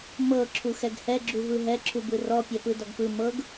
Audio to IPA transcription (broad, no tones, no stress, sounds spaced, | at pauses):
m ɤ ǁʰ u x ɛ ɡ h ɛ ɡ͡ǁ u v ɯ ɦ ɛ ǁʰ u b ɯ r ɔ pʲ ɛ p ɯ d ɔ ɡ p ɯ m ɤ ɡ